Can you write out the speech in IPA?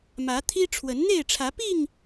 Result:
mä˨˦t̪ʰi˦ ʈ͡ʂʰwə˨˦nn̪e˥˨ɪ̯ʈ͡ʂʰä˨˦pi˥˨ŋ

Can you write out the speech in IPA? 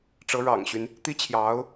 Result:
ʈ͡ʂɤ˧˥ɻɑ̰˨˩ŋɕy˦n | t̪i˥t͡ɕʰjɑ˧˥ʊ̯

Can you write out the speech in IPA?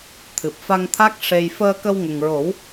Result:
t̪ʰɨ˨˩p̚fa˧ŋt̪ʰa˦˥k̚ ʂe˧j fəː˧kə˧w ŋə˨˩ŋɹo˨˩˦w

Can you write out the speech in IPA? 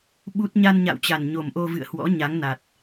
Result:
ɓu˦˥t̚ ɲa˧nɲa̰˧˨wt͡ɕa˨˩n ɲo˨˩mʔo˧vɨ̰˧˨ə̯hwɔ̰˧˥ ɲa˨˦ŋna˨˩t̚

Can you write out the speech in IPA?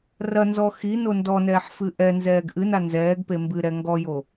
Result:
rɐnzɔ xino ndɔnɛːħ fɨʔɛnzɛːɡ ʔɨna nzɛːɡpe mbɨɾɛ ŋɡɔjo

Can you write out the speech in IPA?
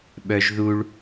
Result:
ɓœʒðuɭ

